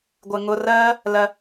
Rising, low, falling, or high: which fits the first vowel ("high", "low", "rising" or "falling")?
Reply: low